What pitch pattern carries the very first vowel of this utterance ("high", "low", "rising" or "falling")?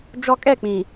high